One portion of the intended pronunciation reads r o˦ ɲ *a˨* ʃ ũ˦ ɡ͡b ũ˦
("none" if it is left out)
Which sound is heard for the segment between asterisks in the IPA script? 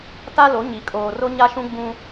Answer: a˦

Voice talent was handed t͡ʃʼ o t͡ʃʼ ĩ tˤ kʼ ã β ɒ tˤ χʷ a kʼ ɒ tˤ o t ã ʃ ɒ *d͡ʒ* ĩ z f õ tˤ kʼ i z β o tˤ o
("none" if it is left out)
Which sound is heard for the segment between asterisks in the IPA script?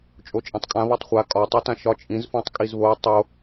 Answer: t͡ʃʼ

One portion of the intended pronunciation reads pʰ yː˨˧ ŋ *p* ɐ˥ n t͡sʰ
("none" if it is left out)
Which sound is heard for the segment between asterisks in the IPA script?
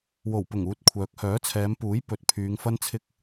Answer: f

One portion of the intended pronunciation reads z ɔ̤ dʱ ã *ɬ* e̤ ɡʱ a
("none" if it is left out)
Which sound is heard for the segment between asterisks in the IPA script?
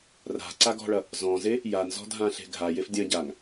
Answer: ɬ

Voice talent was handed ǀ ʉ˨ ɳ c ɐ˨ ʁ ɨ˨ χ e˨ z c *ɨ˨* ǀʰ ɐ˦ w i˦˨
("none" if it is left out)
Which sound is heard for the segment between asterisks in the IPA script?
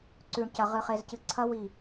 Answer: ɨ˨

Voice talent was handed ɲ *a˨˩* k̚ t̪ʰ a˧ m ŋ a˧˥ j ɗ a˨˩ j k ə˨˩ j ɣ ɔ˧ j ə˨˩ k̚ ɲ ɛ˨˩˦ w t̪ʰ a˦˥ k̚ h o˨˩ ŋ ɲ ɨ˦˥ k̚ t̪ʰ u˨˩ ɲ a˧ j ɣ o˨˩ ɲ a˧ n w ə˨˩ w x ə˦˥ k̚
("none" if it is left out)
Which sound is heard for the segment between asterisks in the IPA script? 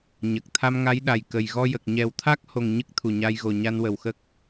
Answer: ə˨˩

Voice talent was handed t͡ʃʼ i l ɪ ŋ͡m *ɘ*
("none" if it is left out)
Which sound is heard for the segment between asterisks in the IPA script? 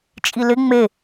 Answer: e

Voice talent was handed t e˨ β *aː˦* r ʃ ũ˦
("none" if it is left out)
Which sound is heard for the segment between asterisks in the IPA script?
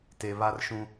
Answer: a˦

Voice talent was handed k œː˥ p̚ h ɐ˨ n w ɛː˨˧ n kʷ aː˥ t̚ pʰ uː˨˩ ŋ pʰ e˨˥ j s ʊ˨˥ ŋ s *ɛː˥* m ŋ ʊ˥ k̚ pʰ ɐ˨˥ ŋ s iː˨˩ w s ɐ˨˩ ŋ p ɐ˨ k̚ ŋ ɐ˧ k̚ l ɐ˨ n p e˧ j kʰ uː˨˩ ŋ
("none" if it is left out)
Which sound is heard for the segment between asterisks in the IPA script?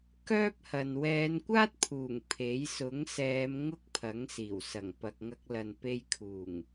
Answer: ɛː˨˧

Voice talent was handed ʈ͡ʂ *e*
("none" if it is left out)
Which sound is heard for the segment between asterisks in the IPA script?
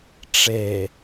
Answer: e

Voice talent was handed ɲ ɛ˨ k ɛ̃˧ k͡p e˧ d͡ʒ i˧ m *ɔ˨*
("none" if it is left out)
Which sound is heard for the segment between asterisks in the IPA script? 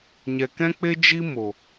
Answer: o˨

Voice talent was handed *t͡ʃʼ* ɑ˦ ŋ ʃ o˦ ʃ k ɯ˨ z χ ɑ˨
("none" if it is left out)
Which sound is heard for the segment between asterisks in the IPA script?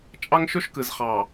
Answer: t͡ʃʼ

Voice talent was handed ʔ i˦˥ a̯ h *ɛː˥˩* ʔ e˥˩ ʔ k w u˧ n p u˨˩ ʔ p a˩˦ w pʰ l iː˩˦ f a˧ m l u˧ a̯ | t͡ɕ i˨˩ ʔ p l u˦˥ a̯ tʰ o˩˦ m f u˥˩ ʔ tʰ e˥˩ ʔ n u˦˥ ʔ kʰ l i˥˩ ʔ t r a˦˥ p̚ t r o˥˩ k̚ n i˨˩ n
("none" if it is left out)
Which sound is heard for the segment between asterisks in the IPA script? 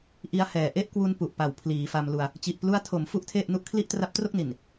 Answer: ɛː˨˩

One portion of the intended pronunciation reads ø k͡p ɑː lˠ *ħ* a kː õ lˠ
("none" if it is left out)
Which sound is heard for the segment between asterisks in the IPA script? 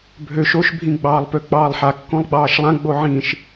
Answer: ħ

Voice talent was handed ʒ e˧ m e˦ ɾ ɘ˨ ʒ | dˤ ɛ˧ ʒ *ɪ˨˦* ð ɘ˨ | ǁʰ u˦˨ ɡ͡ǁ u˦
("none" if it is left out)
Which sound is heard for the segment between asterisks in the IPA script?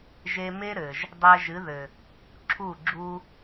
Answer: ɨ˨˦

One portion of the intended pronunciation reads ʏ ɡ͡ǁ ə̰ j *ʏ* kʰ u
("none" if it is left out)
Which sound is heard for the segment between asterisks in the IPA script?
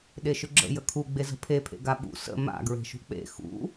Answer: ə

